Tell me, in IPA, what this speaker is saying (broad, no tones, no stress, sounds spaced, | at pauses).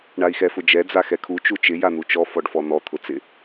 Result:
ɳ a i̯ x ɛ f ʊ d͡ʒ ɛ d͡z a x ɛ kʰ u t͡ʃ u t͡ʃ ɪ j a n̪ u t͡ʃ ɔ f ɔ ɖ f ɔ n̪ ɔ t̪ʰ ʊ t͡s ɪ